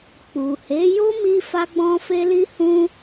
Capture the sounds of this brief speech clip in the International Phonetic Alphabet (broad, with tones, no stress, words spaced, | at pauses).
k͡pu˨he˨˦jo˦ mi˦fa˦ ɡ͡bɔ̃˦fe˦ li˦hũ˦